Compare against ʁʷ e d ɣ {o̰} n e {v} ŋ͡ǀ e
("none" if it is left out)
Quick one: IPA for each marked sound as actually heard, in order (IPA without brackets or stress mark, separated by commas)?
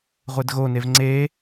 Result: o, v